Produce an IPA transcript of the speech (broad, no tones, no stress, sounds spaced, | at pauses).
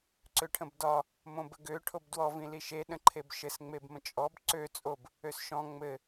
ǀ ø ʈʰ ə̃ b d ɒ | m õ b ə ɡ ø ʈʰ o b d w ɔ v ĩ l i ʃ e ɗ ə̃ ǃʰ e b ʃ ɘ s ŋ͡m e b m ə̃ t͡ʃʼ ɔ b ǀ ø t͡sʼ o b | ø s ʃ ɔ̃ ŋ͡m ɘ